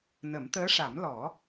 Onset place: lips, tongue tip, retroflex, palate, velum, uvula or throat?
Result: tongue tip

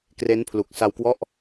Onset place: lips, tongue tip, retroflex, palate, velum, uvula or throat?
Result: velum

